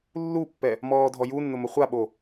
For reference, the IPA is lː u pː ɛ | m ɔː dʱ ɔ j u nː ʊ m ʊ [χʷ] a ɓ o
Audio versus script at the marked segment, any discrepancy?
no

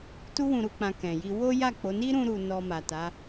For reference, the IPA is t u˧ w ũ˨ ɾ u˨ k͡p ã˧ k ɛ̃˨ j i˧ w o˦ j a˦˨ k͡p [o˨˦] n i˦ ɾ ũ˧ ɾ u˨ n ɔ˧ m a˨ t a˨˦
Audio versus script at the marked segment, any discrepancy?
no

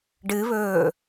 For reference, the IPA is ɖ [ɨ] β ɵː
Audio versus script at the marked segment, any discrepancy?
no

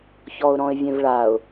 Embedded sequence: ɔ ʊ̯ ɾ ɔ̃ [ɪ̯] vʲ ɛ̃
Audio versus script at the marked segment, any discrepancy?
no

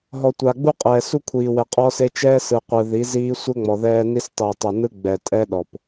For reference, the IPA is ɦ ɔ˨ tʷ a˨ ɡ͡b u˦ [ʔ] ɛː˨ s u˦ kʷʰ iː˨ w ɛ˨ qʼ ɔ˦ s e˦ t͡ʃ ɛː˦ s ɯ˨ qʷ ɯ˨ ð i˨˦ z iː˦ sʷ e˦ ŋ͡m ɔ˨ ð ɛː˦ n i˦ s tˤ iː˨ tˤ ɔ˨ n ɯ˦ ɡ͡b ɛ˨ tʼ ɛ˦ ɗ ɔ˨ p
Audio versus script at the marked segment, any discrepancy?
yes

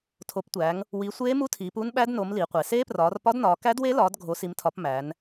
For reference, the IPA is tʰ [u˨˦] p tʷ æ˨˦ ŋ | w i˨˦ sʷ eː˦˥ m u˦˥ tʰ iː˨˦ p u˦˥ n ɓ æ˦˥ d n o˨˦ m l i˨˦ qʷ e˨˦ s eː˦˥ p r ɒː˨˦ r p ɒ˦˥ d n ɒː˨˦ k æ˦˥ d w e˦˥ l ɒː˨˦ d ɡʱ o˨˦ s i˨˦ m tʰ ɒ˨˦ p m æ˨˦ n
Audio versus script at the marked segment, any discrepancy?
yes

